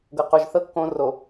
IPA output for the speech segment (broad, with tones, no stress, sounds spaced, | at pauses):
ɡ ɤ˨ q o˨ ʒ θ ɤ˦ kː õ˦ r o˨